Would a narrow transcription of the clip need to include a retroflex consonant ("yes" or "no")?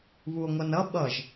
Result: no